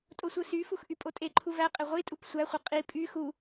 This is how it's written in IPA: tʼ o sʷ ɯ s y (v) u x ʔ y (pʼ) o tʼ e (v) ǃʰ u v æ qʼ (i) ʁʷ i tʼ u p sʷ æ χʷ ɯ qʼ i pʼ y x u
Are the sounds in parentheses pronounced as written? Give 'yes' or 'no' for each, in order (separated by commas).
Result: no, yes, no, no